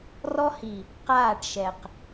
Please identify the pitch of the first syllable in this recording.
high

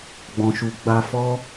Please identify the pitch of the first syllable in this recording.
low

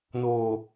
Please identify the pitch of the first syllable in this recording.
low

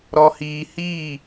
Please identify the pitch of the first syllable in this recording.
low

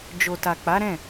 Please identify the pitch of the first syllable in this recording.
low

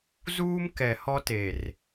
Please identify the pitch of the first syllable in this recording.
high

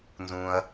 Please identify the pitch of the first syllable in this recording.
low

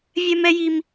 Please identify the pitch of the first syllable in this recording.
high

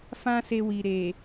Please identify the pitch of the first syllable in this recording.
high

